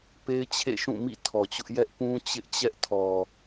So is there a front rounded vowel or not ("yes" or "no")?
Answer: no